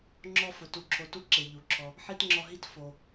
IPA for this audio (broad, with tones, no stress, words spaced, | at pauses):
ŋ͡ǁɔ˥fʊ˨ tu˨ǁʰo˨tu˦ǁe˩ ʎu˩ǁʰɔ˨ | ħi˥tŋ͡ǁɔ˦ɦi˥t fo˨